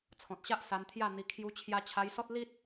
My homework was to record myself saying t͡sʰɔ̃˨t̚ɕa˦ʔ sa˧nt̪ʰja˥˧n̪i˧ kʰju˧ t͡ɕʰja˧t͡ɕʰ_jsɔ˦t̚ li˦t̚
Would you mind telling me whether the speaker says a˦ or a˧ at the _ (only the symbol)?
a˧